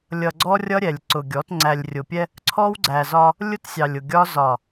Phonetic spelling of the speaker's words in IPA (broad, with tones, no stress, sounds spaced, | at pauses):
lʲ ʌ˨ ɡ͡ǀ ɔ˦ rʲ ʌ˦ ɾʲ ɛ˨ lʲ ǀ ʊ˨ ɡʲ ɔ˨˦ t ŋ͡ǀ æ˨ lʲ rʲ ʊ˨ pʲ ɛ˦ | ǀʰ ɔ˦ w ɡ͡ǀ æ˨ z ɒ˦ | lʲ ʊ˦ t sʲ ɑ˨ lʲ ʊ˨ ɡʲ ɒ˦ z ɒ˨